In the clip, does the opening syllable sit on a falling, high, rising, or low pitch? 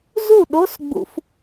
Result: falling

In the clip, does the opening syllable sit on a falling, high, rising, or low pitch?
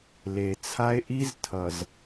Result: low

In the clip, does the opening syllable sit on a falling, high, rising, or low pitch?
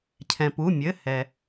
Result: low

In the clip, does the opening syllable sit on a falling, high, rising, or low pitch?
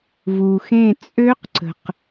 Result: low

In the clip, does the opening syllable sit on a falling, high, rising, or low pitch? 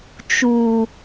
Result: low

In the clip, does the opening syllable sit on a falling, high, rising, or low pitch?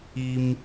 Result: high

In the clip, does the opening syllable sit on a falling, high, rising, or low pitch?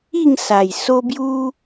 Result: falling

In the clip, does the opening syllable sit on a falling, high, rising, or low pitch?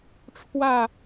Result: falling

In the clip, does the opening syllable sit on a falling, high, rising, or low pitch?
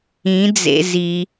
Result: rising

